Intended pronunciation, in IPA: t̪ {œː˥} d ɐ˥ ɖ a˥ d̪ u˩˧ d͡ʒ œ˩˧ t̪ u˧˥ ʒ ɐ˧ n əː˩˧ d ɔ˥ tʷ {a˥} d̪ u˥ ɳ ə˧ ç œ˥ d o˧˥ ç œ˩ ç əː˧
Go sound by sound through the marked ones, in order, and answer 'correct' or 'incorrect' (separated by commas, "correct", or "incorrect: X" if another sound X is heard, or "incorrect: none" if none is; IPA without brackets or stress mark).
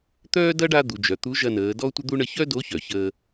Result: correct, incorrect: ə˥